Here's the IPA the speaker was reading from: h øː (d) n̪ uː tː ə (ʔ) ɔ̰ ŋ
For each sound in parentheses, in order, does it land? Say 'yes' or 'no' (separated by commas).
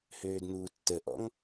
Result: yes, yes